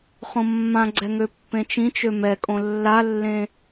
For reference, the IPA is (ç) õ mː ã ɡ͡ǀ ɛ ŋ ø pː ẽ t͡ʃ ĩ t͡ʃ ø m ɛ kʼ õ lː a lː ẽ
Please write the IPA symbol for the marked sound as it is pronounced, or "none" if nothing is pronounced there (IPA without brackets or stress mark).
χ